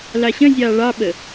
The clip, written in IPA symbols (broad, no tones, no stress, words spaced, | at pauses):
lɑɕœ̃zʲɑː ɭɑɓə